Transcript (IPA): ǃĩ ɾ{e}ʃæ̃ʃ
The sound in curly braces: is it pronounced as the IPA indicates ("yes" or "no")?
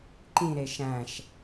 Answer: yes